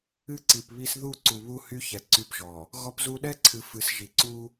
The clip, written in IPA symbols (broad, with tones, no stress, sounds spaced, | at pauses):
ɨ˦ ǀ i˨ p β i˦ s ð u˦˨ ǀ u˨ β u˦ h y˦ ç ɛ˨ ǀ y˦ p ʒ ɔ˨ | ɣ ɔ˦ p z u˦ ɗ ɛ˦ ǀʰ ɨ˨ f ɨ˨˦ s ʒ i˨ ǀ u˦